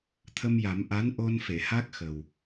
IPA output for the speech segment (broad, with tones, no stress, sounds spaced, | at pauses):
t̪ʰ ə˧ m j a˨˩˦ m ʔ a˧˥ n ʔ o˧ n f e˨˩˨ h a˦˥ k̚ x ə˨˩ w